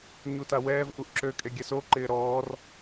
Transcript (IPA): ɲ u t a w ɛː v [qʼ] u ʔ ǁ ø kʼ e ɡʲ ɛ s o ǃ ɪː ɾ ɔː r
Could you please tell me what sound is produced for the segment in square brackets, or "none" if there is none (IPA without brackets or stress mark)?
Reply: ʔ